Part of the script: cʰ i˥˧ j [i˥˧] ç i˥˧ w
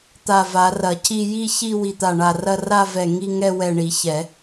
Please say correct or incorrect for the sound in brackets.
correct